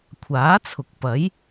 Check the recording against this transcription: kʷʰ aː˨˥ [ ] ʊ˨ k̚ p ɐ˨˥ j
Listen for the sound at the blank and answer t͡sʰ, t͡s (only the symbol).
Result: t͡sʰ